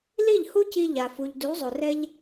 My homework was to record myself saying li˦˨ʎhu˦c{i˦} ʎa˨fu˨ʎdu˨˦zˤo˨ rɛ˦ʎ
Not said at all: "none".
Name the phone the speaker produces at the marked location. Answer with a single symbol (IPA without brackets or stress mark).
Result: i˧